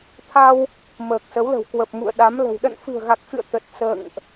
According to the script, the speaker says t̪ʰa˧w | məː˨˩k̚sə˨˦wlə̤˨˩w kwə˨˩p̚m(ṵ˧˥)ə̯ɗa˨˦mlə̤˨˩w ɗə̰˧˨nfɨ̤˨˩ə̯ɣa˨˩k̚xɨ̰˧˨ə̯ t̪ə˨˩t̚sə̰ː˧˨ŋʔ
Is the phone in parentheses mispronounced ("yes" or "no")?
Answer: yes